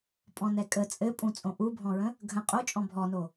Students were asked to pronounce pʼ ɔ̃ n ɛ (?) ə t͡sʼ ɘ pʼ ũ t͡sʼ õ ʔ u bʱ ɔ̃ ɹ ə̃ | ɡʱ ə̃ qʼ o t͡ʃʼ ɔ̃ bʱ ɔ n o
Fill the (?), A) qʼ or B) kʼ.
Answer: B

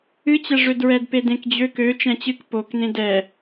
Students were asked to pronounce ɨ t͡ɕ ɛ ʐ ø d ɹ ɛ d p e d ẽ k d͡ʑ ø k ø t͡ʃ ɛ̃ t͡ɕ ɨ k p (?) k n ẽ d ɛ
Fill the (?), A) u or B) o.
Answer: B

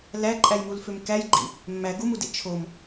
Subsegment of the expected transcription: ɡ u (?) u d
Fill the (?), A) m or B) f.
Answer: A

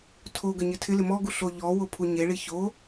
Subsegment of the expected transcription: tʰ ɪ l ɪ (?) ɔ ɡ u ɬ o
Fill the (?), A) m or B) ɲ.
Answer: A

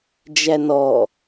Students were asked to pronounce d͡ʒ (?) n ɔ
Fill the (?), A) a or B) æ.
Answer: B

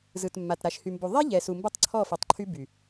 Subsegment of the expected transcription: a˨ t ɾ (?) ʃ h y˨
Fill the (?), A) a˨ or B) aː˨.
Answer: A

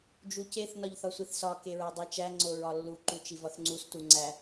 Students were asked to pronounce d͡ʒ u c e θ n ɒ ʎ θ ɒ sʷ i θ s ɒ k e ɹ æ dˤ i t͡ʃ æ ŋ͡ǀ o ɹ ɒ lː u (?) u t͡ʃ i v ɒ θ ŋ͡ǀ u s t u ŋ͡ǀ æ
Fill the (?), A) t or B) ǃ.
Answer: B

